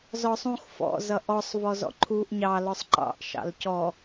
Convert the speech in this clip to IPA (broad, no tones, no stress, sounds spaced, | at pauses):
z ɔ sˤ ũ x f ɔ̰ z ʌ ʔ ɔ sˤ v ɔ z ɔ̰ ǃʰ u ʔ ɲ ɑ l ɔ sˤ ǃ ɑ̰ ʔ ʃ ɑ̰ l c ɔ